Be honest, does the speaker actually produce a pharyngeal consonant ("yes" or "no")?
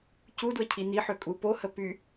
yes